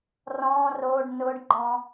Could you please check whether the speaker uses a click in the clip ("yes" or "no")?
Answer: yes